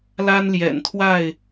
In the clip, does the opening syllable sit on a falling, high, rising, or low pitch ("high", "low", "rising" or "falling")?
high